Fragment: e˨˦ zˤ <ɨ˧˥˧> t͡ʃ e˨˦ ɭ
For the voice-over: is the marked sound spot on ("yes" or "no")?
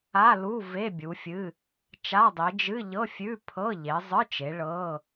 yes